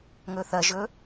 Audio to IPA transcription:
ŋɵθɐʒɵ

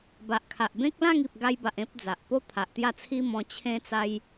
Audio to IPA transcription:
ba˨ʔkʰa˨ʔbẽ˦k̚ lã˥˧ŋi˨p̚ɡa˧jba˨ʔ ẽ˦p̚d͡za˨ʔpo˦ t̪ʰa˨ʔt̪ja˥˧t͡sʰi˦mɔ̃˧ t͡ɕʰẽ˦t͡sa˦j

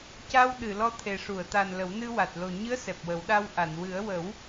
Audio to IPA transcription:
ca˧wɗɨ˨˩˨ lɔ˧t̪ʰe˨˩ʂu˨˩˨ə̯ t̪a˨˩n lə˨˩˦wnɨ˧wa˨˩t̚ lo˨˩ɲɨ˧˥ə̯ sɛ˨˩p̚wə˨˩˦wɗa˧w ʔa˨˩˨n wɨ˨˩˦ə̯wə˨˩˦w

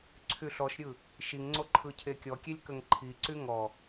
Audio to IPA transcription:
ǀʰyɬɔʃɾʲɯ | ʃiŋŋ͡ǀo ǃʰɯcʰekʲɔkʲelʲ kəŋǃʰiǀy ŋɔ

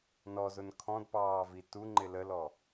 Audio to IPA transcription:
nɔzʊn kʰɔ̃dpɑːvi tuŋ͡ǃɪ ləlɔ

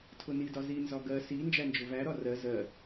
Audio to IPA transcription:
tʰʊnidɒ zinzɒ ɡɜ si nd͡ʒænd͡ʒʊvæɾɒ rɜ zɜ

